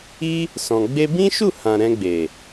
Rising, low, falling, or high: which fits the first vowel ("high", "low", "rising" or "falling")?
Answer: high